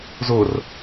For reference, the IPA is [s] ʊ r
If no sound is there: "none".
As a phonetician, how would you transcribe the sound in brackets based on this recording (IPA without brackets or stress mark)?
z